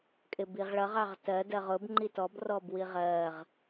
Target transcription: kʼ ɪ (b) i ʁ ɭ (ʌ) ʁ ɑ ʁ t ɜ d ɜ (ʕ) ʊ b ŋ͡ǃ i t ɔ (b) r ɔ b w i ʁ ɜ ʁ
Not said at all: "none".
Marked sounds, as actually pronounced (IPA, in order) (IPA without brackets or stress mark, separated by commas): b, ʌ, ʁ, b